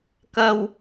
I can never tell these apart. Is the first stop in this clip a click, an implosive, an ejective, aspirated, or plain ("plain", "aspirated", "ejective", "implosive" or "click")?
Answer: plain